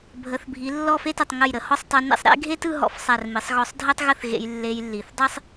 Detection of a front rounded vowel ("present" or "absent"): absent